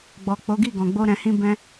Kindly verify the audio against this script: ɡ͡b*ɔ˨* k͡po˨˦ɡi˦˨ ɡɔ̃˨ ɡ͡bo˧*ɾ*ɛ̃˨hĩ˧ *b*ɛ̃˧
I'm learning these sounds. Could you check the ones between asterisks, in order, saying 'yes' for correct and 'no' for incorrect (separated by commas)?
yes, yes, yes